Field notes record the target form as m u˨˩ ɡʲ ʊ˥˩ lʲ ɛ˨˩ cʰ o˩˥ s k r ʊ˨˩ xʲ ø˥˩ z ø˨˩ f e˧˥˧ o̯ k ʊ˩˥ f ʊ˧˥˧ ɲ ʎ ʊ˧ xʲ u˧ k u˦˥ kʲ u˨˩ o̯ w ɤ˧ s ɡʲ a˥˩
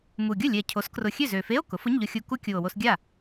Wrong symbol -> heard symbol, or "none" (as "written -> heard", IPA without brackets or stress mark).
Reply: ɤ˧ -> o˧